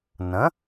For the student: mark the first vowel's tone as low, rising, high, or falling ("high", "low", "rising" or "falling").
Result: rising